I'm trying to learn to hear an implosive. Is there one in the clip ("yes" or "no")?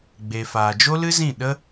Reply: yes